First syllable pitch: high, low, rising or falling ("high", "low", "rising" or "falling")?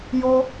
high